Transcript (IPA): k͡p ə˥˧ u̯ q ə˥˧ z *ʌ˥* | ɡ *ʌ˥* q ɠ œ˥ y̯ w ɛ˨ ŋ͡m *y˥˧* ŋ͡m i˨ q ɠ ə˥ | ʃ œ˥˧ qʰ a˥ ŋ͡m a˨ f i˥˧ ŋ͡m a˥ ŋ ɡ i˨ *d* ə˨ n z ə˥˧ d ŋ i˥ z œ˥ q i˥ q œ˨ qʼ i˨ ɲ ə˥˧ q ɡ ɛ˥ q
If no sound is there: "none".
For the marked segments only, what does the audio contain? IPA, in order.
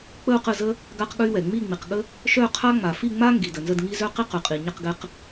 ə˥, a˥, i˥˧, d

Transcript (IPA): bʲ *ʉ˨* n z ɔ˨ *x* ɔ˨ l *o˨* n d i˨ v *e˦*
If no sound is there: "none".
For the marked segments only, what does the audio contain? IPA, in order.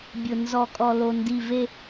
ʊ˨, kʼ, o˨, e˦

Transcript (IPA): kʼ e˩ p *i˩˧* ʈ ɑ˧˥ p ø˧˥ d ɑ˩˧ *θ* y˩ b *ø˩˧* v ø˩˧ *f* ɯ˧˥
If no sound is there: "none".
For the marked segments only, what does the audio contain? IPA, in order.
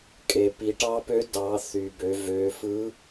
i˩˧, θ, ø˩˧, f

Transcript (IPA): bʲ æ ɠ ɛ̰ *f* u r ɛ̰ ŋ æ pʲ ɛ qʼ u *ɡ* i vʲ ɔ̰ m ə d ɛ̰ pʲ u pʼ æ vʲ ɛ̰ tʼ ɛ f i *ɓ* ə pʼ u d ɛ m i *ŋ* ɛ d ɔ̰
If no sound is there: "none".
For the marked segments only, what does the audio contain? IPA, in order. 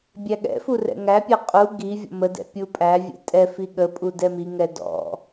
f, ɡ, ɠ, ŋ

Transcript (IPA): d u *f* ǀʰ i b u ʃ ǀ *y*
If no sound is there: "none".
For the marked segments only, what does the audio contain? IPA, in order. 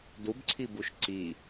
b, i

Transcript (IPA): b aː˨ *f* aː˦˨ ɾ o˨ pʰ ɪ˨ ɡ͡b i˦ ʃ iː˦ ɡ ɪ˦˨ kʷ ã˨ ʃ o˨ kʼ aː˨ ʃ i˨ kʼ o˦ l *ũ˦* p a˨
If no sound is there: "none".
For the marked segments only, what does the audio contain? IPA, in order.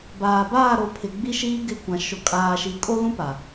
b, ũ˦

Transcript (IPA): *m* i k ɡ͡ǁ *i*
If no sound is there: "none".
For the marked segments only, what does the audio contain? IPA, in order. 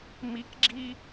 m, i

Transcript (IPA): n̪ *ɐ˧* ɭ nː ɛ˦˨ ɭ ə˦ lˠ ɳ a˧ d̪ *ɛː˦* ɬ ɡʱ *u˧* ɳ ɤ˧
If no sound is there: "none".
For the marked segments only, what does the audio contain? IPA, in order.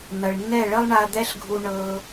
ɐ˨, ɛ˦, u˧

